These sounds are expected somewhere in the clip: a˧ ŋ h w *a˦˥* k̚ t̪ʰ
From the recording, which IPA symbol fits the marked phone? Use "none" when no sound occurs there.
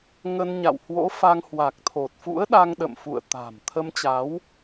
a˨˩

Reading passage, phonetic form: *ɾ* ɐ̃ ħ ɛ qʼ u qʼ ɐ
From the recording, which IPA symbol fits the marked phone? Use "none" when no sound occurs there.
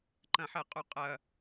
ǃ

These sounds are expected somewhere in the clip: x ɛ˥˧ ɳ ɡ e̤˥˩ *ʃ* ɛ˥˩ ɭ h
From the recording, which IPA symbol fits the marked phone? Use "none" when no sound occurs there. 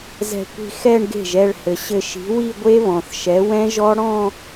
ʒ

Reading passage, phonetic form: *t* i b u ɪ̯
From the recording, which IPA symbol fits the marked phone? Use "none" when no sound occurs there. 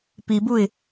p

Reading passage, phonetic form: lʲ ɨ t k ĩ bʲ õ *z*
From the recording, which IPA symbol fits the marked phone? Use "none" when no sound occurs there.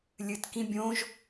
ʒ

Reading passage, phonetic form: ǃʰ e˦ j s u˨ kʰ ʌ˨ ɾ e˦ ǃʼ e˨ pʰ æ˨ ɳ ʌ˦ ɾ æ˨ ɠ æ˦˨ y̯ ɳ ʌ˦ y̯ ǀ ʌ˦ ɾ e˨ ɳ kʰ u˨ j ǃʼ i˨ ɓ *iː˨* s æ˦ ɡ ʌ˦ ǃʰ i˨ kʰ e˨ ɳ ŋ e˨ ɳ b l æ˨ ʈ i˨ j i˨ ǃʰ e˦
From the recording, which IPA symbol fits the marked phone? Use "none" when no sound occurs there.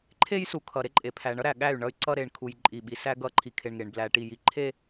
i˨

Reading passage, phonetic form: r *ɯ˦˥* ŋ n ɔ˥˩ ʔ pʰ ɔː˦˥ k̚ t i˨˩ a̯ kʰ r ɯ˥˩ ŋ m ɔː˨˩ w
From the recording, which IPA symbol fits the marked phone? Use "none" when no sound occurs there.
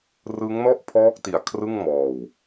ɯ˦˥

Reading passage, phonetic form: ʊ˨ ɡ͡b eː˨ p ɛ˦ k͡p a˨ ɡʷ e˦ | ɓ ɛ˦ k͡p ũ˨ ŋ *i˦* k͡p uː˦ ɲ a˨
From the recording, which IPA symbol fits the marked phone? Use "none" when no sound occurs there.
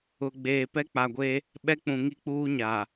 i˦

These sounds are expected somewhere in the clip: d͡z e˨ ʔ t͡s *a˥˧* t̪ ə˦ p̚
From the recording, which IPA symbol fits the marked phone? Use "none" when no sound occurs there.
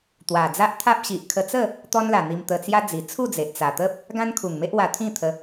a˨˩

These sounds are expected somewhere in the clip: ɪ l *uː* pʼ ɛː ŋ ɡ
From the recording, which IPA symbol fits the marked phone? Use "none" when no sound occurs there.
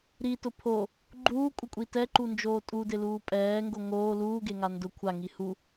uː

